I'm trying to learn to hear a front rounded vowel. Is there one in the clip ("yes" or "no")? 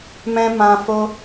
no